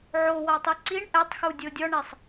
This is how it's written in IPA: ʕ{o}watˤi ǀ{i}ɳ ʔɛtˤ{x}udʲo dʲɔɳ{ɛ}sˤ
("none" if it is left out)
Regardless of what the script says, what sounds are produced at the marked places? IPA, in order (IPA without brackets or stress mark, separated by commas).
o, i, x, e